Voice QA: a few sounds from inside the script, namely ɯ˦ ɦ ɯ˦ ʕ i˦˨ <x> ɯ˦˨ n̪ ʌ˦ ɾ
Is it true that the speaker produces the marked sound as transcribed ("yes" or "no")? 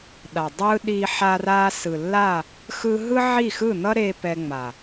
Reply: yes